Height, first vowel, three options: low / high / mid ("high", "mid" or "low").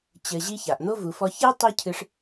mid